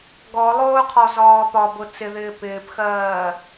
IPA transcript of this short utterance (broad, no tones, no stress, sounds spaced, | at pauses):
ɡ ɔ lˠ ʊː qʰ ɔ z ɒː p ɒ b ʊ t͡s ɪ ð ɪː p ɪː p x ɜː